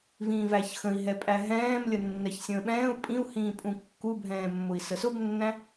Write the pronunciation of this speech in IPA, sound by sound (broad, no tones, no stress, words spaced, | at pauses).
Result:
vĩːvæçxə̃i̯ ɦɛpʼæɦɛ̃ːm lʲənːɛçsʲə̃ːɓɛ̃ːu̯ pʼĩu̯hĩːpʼũ kːubʱɛ̃ːmːʊi̯ səsʊbnːæ̃